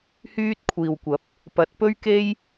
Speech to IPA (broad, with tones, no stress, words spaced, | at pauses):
hyː˥t̚kʷʰiː˨wkʷɐ˨˥p̚ | pɐ˨˥t̚pɵ˥ɥke˥j